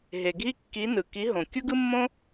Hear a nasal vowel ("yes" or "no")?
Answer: yes